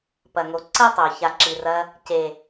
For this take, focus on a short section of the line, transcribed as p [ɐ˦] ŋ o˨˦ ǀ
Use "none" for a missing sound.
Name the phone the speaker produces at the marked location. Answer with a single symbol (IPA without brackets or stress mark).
ɐ˨